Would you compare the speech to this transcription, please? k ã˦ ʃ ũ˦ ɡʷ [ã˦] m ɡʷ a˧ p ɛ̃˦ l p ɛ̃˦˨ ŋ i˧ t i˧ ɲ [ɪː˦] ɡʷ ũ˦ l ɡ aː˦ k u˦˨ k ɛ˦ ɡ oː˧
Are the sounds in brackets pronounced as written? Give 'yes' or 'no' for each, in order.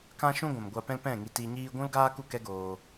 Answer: no, no

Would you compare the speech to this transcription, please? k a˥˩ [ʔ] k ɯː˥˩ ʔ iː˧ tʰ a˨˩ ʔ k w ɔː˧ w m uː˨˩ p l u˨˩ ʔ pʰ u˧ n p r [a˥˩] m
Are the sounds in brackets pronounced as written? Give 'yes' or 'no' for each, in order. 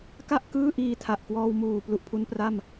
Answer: yes, yes

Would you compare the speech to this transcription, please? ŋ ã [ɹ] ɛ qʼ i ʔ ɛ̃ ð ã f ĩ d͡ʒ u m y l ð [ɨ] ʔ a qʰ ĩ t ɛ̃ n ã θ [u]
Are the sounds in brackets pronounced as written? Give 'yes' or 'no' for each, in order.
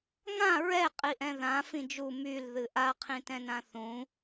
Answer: yes, yes, no

